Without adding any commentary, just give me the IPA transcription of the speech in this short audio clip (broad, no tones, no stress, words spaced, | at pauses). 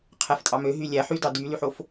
qʰæftʼɑmø ɦylʲæ ħydɑ dylyħof